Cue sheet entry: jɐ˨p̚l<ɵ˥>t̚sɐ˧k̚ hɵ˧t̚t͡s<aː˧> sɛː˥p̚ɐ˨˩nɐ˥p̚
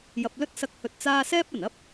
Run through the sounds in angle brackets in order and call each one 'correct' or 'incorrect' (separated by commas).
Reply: correct, incorrect